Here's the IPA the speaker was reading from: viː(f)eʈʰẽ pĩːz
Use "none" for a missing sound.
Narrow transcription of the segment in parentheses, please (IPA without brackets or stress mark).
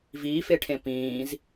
f